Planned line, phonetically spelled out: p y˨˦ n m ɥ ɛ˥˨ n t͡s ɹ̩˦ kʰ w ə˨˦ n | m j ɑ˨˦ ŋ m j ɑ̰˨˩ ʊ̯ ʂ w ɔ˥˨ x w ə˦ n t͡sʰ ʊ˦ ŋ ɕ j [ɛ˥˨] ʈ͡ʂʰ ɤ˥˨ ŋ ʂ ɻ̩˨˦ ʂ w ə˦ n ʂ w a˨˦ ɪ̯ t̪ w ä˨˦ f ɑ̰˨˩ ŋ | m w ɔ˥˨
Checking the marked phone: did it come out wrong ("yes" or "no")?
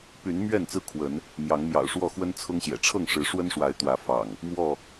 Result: yes